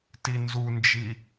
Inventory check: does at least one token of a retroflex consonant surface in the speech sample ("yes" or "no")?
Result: no